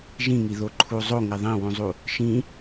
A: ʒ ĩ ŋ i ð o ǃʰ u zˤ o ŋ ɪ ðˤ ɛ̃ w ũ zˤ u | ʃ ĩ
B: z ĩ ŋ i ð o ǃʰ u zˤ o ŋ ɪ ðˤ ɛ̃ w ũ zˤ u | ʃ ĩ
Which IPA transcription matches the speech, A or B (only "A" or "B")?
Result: A